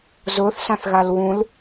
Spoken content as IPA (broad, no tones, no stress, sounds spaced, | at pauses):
z ʊː θ s ã θ ɣ a l w ũ l